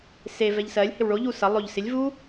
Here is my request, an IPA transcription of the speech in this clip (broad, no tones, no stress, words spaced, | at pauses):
se vɛʎsɜlʲhɪw ɭoʎu sʌ lˠoʎ sɪlʲvu